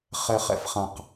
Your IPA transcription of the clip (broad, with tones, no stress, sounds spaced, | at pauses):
χ ɛ˨ χ ɛ̰˨ f χ ã˨ q